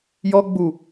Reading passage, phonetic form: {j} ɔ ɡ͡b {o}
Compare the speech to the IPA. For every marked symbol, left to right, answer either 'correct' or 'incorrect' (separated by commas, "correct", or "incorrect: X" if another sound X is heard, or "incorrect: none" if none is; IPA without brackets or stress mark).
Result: correct, incorrect: u